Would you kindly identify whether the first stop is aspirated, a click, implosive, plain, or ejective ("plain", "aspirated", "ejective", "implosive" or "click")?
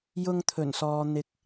aspirated